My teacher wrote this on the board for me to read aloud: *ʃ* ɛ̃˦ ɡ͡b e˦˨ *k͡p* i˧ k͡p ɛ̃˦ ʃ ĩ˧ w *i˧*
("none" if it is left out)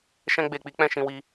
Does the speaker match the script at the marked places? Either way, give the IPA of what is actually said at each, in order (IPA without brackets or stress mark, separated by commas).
ʃ, k͡p, i˧